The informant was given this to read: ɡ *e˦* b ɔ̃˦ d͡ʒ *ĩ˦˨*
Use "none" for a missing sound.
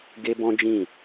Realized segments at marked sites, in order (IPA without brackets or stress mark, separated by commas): e˦, ĩ˦˨